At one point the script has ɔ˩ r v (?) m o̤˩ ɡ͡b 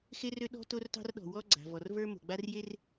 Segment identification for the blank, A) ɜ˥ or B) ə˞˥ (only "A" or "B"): B